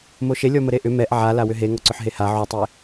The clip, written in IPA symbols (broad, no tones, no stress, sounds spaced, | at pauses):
m o ʃ e lʲ ɔ m ə ɾ e ʔ ʏ m ɛ ʔ ʕ a l a w ʏ ɦ e ŋ ɔ ǀ ʏ ħ ɦ e h a ʕ o tˤ e